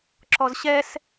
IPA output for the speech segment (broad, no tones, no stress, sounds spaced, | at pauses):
ǁ ɔ z ɕ ɛ s